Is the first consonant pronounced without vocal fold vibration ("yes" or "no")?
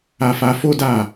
yes